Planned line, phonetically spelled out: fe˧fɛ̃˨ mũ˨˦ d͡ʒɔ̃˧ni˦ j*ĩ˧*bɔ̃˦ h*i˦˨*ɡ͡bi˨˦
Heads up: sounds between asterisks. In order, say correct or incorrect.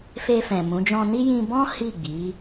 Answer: correct, correct

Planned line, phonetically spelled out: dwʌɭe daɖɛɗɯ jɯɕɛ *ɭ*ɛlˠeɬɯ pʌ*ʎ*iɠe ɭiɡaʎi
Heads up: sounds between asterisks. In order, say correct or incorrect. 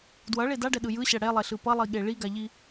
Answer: incorrect: ɽ, incorrect: lˠ

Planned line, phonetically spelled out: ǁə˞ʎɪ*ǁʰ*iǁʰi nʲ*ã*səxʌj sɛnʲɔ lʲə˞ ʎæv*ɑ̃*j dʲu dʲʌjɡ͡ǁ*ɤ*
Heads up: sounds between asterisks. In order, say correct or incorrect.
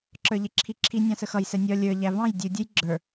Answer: correct, incorrect: ɑ̃, correct, incorrect: ə˞

